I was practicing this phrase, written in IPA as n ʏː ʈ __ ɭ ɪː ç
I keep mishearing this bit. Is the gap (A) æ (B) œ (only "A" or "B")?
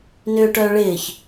B